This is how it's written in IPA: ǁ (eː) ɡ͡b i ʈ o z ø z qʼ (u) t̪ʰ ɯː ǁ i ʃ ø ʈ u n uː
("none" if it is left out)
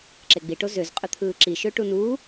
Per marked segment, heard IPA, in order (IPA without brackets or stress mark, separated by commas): e, ø